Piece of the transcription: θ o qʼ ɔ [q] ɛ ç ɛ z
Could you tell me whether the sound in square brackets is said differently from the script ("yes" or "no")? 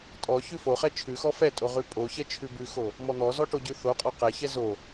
no